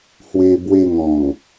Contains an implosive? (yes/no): no